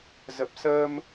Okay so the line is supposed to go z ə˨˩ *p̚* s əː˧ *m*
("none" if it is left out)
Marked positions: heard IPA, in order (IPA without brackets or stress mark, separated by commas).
p̚, m